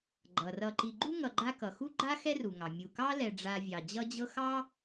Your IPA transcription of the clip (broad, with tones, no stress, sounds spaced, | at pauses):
ɡ͡ǃ ʌ˩ r ʌ˨ ǃ i˨ ɡ͡ǃ u˥ ŋ ʌ˨ ɡ͡ǃ a˦ k ʌ˩ x u˥ ɡ͡ǃ a˥ x ɛ˥ r u˩ ŋ ɑ˩ mʲ u˨ k ɑ˥ l ɛ˨ ɖ͡ʐ a˦ vʲ ɑ˨ d͡ʑ ʌ˦ d͡ʑ ɤ˦ x ɑ˥